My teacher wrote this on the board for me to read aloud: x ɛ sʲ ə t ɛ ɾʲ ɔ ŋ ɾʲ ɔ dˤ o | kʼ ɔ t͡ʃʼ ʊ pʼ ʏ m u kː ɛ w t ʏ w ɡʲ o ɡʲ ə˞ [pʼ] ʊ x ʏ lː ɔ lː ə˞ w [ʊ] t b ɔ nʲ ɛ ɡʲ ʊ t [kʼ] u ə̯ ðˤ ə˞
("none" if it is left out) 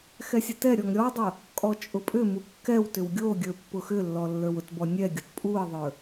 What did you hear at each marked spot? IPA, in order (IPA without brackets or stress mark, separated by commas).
pː, ʊ, pʼ